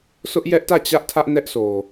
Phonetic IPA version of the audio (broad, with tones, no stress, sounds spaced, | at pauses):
sʰ ʊ˦ ʔ j ɛ˦ ʔ t ä˦˨ t͡ɕ ä˦ ʔ tʰ ä˦ ʔ n ɛ˦ ʔ s o˨